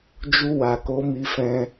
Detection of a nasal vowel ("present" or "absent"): present